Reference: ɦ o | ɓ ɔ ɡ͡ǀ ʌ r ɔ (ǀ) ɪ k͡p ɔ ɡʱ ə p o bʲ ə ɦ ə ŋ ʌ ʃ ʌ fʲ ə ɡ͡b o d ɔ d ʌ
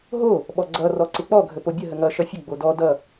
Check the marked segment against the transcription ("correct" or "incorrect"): correct